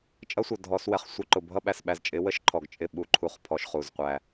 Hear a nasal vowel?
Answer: no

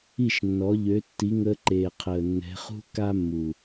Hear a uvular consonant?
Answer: yes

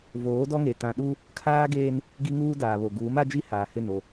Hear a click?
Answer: no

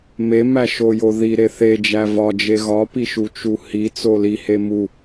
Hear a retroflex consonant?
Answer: no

